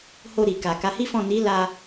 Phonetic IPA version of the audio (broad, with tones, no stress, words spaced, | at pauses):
ho˧ɾi˨ka˨ ka˨˦hi˦fɔ̃˦˨ ni˨˦la˧